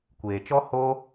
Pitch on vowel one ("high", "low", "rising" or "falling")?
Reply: low